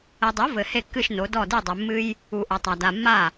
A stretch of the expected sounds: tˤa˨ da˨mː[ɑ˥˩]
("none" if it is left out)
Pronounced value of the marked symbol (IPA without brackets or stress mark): a˥˩